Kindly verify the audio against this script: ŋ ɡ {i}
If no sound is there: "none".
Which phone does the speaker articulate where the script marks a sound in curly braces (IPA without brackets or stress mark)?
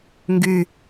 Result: y